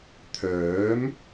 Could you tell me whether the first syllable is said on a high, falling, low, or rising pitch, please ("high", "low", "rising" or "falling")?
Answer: rising